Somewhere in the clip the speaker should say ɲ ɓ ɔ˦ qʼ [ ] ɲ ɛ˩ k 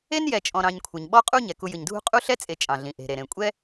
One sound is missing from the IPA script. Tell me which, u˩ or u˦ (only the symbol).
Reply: u˦